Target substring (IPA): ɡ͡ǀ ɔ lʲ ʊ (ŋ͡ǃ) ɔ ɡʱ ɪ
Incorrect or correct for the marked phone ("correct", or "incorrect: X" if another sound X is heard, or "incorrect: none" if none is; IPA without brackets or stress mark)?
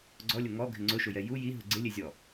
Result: incorrect: ŋ